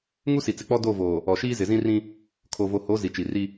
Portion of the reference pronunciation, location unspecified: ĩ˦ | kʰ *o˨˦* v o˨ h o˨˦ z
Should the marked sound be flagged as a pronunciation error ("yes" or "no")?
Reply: yes